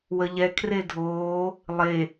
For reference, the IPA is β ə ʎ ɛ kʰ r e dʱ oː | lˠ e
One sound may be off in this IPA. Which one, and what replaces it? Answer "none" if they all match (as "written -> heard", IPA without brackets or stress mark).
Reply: β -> w